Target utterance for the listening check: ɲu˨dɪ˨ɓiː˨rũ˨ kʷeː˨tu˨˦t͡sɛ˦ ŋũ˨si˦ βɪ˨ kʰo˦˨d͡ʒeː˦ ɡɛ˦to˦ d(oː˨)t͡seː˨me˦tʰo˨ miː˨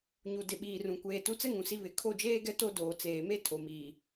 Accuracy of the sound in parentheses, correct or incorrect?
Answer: correct